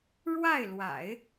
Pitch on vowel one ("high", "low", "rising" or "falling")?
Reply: falling